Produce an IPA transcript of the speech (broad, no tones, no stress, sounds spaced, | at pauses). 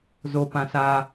z o p ã s a